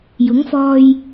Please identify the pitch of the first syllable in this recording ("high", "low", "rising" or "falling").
rising